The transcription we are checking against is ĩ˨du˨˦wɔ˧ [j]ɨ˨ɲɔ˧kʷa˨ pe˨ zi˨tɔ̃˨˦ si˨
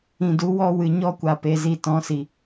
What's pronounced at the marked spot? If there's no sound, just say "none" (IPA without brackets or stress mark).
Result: w